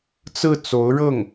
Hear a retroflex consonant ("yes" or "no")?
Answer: yes